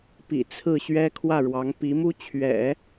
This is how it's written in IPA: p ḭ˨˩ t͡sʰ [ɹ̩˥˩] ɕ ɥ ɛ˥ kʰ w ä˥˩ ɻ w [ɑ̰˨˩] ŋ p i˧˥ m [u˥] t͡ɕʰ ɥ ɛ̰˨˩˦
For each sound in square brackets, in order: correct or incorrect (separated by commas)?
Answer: correct, incorrect, correct